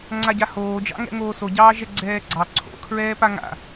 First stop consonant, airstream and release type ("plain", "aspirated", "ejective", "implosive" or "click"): click